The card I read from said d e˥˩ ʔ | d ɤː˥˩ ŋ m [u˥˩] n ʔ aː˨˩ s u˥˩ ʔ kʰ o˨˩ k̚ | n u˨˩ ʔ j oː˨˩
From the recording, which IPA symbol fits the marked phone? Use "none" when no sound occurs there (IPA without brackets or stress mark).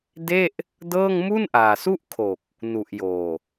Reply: u˥˩